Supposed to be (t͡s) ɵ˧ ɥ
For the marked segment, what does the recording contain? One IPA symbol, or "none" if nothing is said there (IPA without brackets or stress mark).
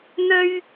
n̪